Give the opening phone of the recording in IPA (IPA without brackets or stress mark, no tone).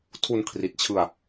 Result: tʰ